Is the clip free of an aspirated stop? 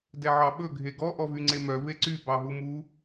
yes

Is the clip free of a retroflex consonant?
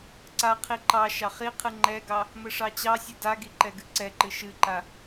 no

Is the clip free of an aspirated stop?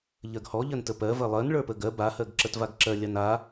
yes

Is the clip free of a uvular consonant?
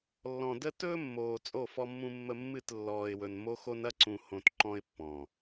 yes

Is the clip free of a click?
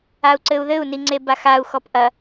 no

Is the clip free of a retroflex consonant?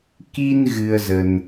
yes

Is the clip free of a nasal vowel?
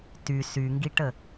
yes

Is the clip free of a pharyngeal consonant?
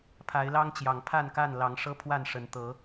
yes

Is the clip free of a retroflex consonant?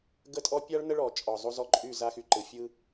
no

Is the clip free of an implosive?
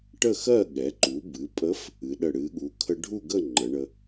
no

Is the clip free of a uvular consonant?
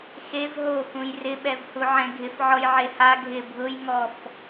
yes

